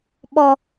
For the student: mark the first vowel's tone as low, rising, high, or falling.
low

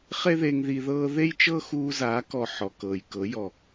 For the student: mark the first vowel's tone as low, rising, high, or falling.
high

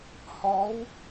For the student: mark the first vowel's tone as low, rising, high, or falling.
rising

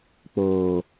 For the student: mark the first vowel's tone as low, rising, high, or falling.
low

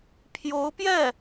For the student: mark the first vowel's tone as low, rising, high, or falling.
rising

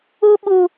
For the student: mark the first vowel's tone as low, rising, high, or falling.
high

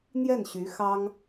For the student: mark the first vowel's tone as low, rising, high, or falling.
falling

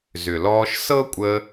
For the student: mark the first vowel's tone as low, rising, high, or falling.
low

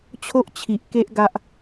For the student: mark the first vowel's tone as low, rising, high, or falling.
high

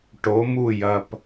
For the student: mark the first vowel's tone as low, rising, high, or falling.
rising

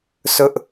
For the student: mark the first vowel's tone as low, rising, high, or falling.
high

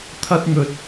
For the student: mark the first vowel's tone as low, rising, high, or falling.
high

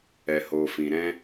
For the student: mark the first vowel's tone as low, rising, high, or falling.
low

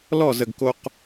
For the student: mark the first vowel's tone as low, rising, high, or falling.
falling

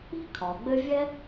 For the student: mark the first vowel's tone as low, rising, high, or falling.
high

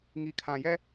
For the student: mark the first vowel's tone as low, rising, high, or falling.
low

